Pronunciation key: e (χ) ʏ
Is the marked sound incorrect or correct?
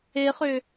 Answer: correct